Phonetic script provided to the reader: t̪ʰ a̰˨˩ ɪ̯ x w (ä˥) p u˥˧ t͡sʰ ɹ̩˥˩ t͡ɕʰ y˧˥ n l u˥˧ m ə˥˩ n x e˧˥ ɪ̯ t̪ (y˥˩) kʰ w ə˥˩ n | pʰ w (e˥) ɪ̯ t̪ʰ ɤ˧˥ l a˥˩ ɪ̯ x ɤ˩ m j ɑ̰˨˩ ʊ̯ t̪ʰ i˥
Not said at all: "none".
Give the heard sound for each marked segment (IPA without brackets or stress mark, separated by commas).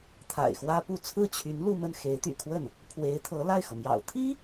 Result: ä˥, y̰˨˩, e˧˥